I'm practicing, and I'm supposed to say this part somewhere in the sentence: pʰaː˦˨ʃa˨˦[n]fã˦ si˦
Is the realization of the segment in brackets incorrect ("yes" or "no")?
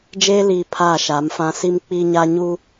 yes